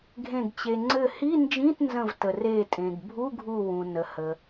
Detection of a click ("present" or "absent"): present